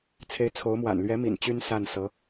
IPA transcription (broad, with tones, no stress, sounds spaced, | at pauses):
t͡sʰ e˧˥ ɪ̯ t͡sʰ o˧˥ ʊ̯ m w a̰˨˩ n l ɥ ɛ˧˥ m ḭ˨˩ n t͡ɕ y˥ n s a˥˩ n s ɤ˧˥